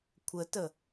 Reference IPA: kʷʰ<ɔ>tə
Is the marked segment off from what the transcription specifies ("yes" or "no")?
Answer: yes